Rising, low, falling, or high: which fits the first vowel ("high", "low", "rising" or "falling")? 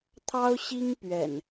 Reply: high